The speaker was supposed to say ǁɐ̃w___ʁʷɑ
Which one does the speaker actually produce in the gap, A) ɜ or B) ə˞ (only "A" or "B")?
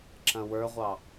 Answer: B